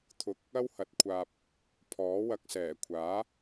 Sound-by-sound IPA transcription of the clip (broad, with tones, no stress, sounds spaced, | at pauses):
t̪ʰ ʊ˧ k̚ | ɐ˥ w h ɐ˨˥ t̚ kʷʰ aː˧ p̚ | pʰ ɔː˨˥ w ɐ˧ k̚ s ɛː˨˩ kʷʰ aː˨˥